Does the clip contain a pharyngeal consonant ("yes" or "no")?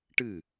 no